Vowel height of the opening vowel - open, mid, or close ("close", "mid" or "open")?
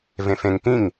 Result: mid